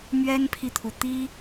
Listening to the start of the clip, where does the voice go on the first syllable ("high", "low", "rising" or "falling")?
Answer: high